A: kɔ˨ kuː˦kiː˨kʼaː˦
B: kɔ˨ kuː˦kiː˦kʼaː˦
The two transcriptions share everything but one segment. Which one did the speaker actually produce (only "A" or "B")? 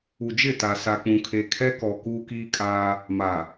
B